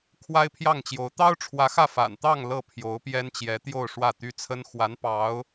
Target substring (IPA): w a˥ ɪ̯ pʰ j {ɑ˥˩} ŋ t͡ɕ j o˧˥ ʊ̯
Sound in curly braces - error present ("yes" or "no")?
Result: no